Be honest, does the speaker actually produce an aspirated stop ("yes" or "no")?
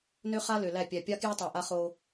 no